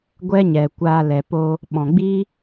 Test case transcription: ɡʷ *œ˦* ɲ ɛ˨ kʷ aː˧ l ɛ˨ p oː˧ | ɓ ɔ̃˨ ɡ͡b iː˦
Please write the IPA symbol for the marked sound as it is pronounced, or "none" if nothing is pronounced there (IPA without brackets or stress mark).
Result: ɛ˦